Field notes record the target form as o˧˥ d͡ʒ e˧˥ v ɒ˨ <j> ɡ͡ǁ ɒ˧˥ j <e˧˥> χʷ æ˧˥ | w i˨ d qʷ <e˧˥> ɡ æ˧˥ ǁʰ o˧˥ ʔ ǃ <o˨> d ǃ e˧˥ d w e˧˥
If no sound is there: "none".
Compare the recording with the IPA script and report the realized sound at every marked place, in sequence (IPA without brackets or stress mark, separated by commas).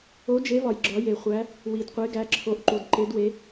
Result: j, e˨, e˧˥, u˨